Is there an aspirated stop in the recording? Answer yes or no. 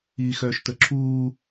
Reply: yes